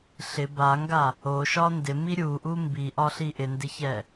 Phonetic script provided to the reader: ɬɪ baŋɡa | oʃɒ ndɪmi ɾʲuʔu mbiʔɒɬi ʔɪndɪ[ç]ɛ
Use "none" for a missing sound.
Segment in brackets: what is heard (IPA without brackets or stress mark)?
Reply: ç